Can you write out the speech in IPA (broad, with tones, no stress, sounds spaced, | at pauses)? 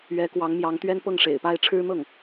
ɥ ɛ˧˥ k w ɑ˧˥ ŋ m j ɑ˧˥ ŋ t̪ ɥ ɛ˥ n p ɤ˥˩ ŋ ʂ ḛ˨˩ ɪ̯ p a˥˩ ɪ̯ ʈ͡ʂʰ ɻ̩˥ n̪ ɤ˥˩ ŋ